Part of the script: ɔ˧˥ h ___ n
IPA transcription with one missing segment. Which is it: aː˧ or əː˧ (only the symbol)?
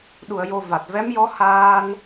aː˧